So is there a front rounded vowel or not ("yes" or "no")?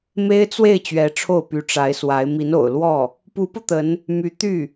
yes